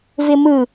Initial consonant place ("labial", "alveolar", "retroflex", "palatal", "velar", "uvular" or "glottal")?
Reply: labial